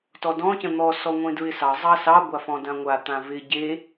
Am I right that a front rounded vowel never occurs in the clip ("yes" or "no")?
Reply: yes